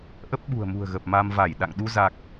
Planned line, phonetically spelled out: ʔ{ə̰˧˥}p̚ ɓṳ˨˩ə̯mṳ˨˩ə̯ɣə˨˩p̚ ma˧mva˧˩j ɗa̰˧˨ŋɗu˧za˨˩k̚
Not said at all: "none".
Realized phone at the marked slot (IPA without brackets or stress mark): ə˦˥